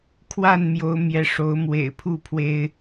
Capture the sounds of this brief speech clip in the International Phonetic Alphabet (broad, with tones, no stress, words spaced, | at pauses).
kʰwa˥˨nmjo˨˦ʊ̯ mjɛ˨˦ʂo˨˦ʊ̯mwḛ˨˩ɪ̯pʰu˥˨ pʰwe˦ɪ̯